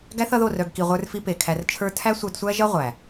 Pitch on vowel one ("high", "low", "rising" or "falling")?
high